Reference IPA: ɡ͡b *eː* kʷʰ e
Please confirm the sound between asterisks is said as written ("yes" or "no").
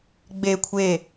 no